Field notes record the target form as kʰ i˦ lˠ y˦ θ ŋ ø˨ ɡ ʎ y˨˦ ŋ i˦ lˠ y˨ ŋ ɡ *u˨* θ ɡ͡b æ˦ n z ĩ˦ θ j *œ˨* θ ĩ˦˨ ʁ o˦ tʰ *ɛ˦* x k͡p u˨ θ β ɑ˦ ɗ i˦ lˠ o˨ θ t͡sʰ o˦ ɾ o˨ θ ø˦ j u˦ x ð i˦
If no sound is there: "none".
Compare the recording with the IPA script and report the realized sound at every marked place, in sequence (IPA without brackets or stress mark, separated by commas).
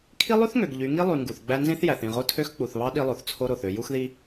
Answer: u˨, æ˨, ø˦